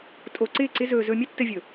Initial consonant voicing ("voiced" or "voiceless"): voiceless